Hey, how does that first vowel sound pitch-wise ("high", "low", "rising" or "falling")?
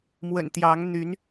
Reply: low